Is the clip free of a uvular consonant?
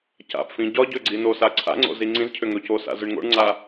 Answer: yes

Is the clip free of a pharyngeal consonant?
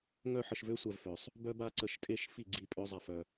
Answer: no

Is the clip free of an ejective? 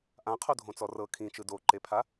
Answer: yes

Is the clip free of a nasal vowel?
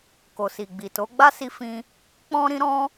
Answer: no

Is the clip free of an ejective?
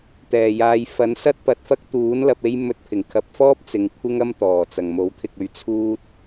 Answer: yes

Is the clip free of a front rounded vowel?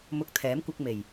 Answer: yes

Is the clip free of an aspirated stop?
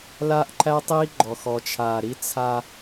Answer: no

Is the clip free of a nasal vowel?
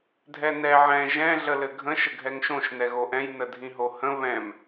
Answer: no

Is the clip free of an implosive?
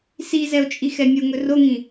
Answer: yes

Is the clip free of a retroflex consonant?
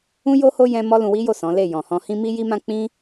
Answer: yes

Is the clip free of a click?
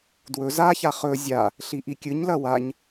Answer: yes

